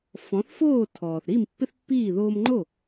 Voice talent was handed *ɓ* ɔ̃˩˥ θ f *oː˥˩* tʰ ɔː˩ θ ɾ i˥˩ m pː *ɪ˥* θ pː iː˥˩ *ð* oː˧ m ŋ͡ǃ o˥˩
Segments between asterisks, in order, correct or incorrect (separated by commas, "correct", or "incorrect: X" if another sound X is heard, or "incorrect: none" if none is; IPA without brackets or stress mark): incorrect: f, correct, correct, correct